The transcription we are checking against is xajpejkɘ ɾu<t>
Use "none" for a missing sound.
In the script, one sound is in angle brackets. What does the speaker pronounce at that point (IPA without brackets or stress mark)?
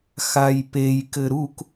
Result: k